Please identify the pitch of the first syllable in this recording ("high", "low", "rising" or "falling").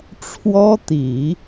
high